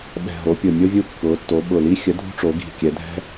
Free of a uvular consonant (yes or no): yes